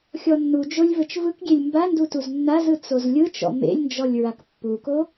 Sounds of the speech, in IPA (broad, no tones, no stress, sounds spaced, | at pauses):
xʲ ɔ nː u d͡ʒ o lʲ v ɘ t͡ʃ v ɯ k ɡʲ e lʲ m b a n d u t u z nː a z ɯ t͡s o z lʲ ɯ t͡ʃ ɔ̰ m ḛ lʲ n d͡ʒ ɔ lʲ ɹ a k pː u k o